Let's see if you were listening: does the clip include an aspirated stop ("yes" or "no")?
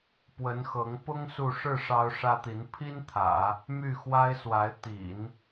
yes